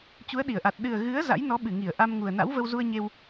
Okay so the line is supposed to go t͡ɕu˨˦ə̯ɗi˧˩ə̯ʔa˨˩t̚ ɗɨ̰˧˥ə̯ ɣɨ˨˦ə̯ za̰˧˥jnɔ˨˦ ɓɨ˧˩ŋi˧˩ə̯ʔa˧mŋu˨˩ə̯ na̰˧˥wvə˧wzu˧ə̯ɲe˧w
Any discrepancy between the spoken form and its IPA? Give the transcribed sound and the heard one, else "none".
ɨ̰˧˥ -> ɨ˨˩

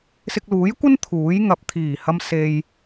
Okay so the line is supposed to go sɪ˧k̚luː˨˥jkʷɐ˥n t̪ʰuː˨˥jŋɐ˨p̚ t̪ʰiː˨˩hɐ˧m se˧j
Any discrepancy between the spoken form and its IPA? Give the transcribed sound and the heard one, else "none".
none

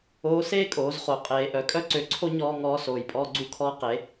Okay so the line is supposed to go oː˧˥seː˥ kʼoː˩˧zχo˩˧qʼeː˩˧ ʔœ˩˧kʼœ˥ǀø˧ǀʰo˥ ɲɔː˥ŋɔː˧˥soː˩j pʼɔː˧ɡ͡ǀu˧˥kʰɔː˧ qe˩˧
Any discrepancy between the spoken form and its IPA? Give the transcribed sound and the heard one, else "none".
none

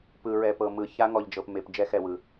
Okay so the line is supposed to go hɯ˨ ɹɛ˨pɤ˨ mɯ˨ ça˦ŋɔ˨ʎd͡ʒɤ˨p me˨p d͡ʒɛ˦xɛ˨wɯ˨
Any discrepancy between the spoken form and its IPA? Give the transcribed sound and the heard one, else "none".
h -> p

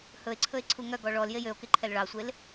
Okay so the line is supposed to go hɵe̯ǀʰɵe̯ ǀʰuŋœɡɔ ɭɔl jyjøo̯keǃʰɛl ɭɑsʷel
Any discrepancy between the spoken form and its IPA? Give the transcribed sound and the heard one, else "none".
y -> e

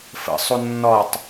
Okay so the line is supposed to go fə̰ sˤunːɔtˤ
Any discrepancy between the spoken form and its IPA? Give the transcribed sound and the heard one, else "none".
none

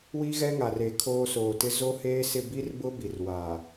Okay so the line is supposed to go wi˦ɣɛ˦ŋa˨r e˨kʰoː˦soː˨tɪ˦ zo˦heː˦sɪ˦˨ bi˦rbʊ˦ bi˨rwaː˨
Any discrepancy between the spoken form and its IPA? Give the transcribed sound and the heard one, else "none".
none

